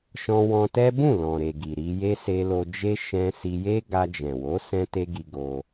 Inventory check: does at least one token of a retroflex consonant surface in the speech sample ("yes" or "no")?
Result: no